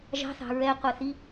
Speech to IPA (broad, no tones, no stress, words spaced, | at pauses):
ʒɑ̤θɑ̤ ɹɛqʷɛθi